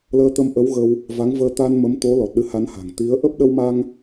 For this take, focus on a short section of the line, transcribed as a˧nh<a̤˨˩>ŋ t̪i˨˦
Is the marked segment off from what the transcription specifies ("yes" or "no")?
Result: no